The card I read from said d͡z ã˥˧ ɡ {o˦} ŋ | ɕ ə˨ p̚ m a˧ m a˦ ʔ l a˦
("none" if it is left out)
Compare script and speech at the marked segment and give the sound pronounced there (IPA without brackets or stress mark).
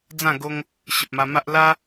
o˦